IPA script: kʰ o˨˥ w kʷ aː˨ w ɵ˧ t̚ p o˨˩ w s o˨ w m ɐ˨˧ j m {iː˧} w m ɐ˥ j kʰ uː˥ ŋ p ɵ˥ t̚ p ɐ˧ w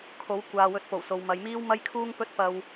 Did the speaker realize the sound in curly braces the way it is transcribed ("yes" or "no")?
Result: no